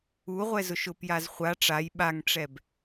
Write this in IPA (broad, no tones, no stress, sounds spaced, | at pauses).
u ʁʷ ɛ z ʊ ʃ ʊ p j a z χʷ a ʈ͡ʂ a j ɓ a ŋ ʈ͡ʂ ɛ b